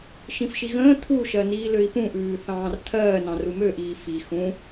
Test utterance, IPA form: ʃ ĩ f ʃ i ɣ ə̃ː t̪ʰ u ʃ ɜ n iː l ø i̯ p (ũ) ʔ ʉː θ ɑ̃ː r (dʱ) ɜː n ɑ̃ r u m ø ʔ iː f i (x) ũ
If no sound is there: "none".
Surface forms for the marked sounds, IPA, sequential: ũ, t̪ʰ, x

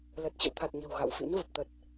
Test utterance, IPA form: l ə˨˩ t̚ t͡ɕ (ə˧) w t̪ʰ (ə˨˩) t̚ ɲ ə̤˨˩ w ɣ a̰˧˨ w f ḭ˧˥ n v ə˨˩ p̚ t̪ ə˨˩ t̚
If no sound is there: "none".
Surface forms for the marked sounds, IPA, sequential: ə̰˧˨, a˨˩

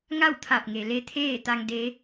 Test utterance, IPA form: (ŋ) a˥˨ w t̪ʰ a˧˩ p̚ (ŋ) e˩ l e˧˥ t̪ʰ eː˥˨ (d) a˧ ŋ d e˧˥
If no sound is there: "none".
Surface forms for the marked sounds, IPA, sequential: ŋ, ŋ, t̪

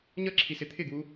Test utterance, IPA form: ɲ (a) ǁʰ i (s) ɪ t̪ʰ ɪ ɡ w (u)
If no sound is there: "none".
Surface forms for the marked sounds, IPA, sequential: ʌ, s, u

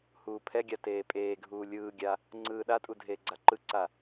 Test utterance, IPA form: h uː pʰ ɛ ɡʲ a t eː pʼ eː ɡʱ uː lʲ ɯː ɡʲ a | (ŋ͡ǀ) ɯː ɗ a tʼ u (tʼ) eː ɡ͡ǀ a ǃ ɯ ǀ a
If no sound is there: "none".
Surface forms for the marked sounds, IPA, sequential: ŋ͡ǀ, dʱ

